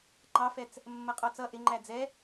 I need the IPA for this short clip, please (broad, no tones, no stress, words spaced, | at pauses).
ŋ͡ǃɑfɛt͡s | mːʌqʼɔt͡sʌ ʔɪŋ͡ǃæ d͡zɛ